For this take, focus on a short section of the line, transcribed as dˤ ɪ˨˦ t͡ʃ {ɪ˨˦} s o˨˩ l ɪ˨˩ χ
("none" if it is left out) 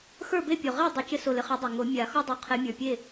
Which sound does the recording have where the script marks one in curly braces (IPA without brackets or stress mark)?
ɪ˦